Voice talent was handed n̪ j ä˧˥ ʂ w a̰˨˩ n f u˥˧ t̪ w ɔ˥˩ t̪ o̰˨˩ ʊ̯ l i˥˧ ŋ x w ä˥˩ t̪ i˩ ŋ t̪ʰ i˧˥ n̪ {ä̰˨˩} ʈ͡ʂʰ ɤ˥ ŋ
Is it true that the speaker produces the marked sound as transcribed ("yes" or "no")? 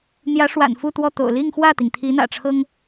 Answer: yes